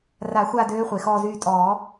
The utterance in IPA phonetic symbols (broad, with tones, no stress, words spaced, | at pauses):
ra˨˩˦xʷa˦˨ døː˧˥χʷe˩xɔː˦˨zyː˦˨ tʼɔː˨˩˦